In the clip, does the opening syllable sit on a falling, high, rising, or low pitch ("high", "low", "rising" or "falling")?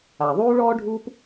low